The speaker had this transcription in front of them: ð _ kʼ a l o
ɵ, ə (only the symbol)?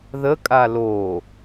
ə